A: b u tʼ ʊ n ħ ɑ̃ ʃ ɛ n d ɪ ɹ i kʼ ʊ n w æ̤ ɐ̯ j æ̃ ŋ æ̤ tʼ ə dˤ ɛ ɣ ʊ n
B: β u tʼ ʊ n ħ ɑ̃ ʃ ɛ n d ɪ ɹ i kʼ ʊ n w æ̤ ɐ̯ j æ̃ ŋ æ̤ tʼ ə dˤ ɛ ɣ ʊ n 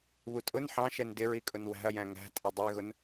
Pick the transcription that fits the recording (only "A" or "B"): B